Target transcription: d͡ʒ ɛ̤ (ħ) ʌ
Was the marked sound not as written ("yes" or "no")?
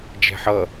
no